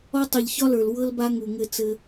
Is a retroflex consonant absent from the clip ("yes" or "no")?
yes